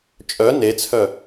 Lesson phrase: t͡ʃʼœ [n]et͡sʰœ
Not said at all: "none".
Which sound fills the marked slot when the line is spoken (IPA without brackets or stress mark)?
n